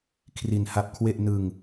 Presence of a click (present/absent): absent